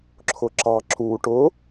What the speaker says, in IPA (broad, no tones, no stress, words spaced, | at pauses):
ǁʰʊǁɑ ǁu ʈʊ